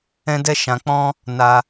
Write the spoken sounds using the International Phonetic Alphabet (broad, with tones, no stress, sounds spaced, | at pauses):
ɛ̃˦ d ɛ˦ ʃ ã˧ k͡p ɔ̃˦ | n a˦